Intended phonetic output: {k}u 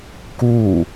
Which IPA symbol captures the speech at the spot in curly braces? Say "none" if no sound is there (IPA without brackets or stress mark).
k